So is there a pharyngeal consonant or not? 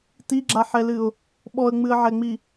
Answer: yes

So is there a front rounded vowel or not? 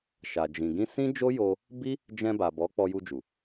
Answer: no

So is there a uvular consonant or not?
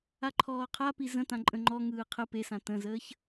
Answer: yes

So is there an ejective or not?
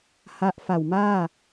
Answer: no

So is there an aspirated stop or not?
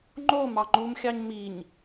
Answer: no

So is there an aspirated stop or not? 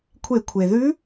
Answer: yes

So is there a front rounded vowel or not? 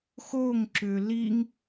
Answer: yes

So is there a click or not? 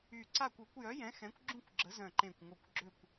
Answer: yes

